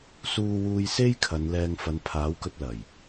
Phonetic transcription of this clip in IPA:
s uː˧ w uː˧ j s e˥ j kʰ ɐ˨˧ n l ɛː˧ ŋ f ɐ˨ n pʰ aː˨˥ w k ɵ˧ t̚ l ɐ˨˩ j

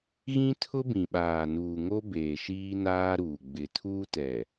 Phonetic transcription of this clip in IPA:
ɣ ĩ˦ tʰ ʊ˦ b ĩ˨ ɓ aː˨ n uː˨ ŋ o˦ b eː˨ ʃ iː˦ n aː˦ ɾ uː˨ ɡ͡b ɪ˨ tʰ uː˦ t ɛ˨

